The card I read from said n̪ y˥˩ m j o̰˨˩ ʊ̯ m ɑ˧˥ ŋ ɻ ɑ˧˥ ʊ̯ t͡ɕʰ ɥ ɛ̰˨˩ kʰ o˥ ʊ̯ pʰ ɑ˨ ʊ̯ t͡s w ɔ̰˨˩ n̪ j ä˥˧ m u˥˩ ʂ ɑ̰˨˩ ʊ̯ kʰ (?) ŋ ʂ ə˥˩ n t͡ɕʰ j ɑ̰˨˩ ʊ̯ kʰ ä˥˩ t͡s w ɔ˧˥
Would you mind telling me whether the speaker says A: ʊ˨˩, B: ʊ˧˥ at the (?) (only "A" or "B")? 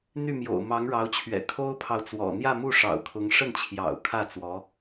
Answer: B